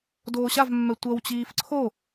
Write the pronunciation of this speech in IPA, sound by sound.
d oː ɕ a v mː ɛ tʷ ʌ w t͡ɕ iː f ǀʰ o

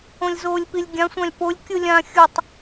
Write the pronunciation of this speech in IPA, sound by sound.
õ lʲ z oː lʲ p i lʲ ɡʲ ã sʷ ã lʲ p o lʲ kʲ ɯ lʲ ã xʲ ʊ tˤ

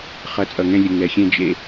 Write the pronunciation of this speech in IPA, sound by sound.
χ ʌ˨˦ t͡sʼ ʌ˨ ŋ ɛ̃˦ lʲ ə˨ ŋ ɛ˨ xʲ ɛ̃˦ d͡ʒ ḛ˦

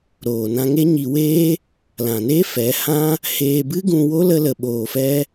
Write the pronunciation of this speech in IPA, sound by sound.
ɾ oː˨ n ã˧ ŋ e˦ ɲ i˧ w eː˦ | l ã˨ n eː˦ f ɛ˨˦ h ã˦ | h eː˧ b ɨ˦ ɡ ũ˧ w o˦ l ə˦ l ə˧ ɓ oː˧ f ɛ˦

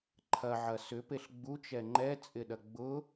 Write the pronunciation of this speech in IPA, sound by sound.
ǃʰ ɐ ʕ ɐ s ʏ p e ɬ ɡ͡b u t͡ʃ ɛ ŋ͡ǃ ɛ t͡sʼ ɪ ɗ ɐ ɡ͡b ʊ

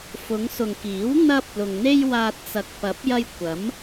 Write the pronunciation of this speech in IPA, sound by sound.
f ʊ˨˧ ŋ s ʊ˨ ŋ k iː˨˥ w n̪ ɐ˥ p̚ l ʊ˨ ŋ n̪ e˥ j w aː˧ t̚ t͡s ɐ˨ k̚ p ɐ˨˥ p̚ j ɐ˧ j kʷ ɐ˨˥ m

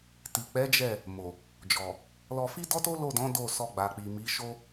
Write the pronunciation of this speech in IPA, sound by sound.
t i˨ k͡p ɛ˨˦ d͡ʒ ɛ˦˨ | m o˨ | d͡ʒ ɔ˨ | l ɔ˧ f i˦ d ɔ˦ t o˦ l o˦˨ d ɔ̃˨˦ d o˦˨ s ɔ˧ ɡ͡b a˨ k͡p i˨ m i˨˦ ʃ o˦

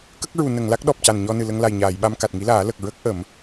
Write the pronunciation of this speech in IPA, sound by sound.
k ə˦˥ k̚ ɹ u˨˩˨ n ə˨˩˨ ŋ l a˦˥ k̚ ɗ ɔ˨˩ p̚ c a˨˩ n ɲ ɔ˧ n ɨ˨˩ l ə˧ ŋ l a˨˩ j ɲ aː˨˩˨ j ɓ a˧ m k a˨˩ t̚ ŋ i˧˥ l aː˨˩˦ l ə˨˩ k̚ ɹ ə˦˥ k̚ ʔ ə˨˩˦ m

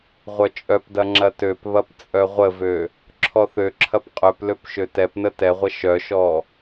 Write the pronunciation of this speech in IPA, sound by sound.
ʁʷ œ t͡ʃʼ œ p d ɐ ŋ͡ǁ ɐ t ø p β ɐ p t͡sʼ œ ʁʷ ə v ø | ǁʰ ɔ θ ø ǁʰ ɐ p qʼ œ p l ø p ʃ ø t ɛ p n ə t ɛ ʁʷ ə ʃ œ ʃ ɔ

